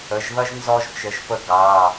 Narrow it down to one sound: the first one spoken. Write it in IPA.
ə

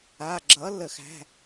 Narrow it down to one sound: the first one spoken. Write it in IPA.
a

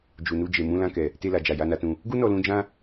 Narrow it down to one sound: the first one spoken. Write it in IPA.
d͡ʒ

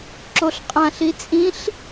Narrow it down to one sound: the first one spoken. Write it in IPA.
ǁ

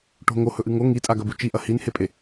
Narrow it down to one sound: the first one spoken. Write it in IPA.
ʈ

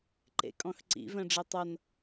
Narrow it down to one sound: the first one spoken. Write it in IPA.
ǃ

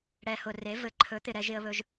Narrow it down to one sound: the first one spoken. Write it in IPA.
ɽ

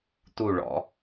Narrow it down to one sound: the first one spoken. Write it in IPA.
t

